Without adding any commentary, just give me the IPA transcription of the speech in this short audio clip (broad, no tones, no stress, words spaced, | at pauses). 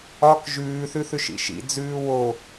ɒk ʒʉːθʉθʉʃ ḭʃḭ d͡zʉːwo